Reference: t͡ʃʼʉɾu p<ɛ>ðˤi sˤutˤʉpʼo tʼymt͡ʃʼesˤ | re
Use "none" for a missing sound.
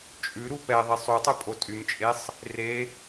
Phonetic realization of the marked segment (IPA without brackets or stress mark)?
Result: ɛ